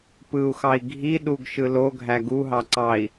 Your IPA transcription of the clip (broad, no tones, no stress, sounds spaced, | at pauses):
p ɯ u̯ x ɑ i̯ ɡʱ i ɗ u ɡ ʃ ɯ l o ɡʱ æ ɡ u ɦ ɑ ǀ ɑ i̯